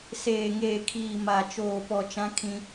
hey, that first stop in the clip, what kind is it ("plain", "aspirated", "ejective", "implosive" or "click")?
aspirated